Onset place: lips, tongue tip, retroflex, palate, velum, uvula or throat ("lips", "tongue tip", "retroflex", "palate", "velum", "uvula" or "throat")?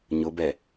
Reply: palate